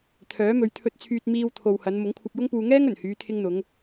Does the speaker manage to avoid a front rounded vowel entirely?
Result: no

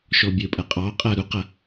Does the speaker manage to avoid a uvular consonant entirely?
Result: no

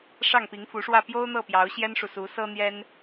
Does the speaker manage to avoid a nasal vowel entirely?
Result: yes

